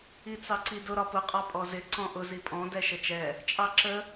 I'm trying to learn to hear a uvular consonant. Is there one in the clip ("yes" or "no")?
yes